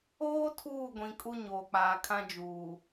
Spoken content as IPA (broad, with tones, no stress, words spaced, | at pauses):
oː˦ tʰuː˦˨ɡʷĩ˨ kʼu˦ɲoː˨k͡paː˨ kʰã˦d͡ʒuː˨